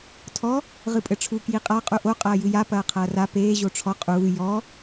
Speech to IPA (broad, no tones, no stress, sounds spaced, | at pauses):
tʰ ɔ | ʁ ɨ pʼ ɘ ʈ͡ʂʰ u k j i qʼ a qʼ u ʔ o qʼ ɐː j ɨ j a p ɐː qʰ ɐː r a p eː ʑ o ʈ͡ʂʰ ɔ qʼ uː j ɔ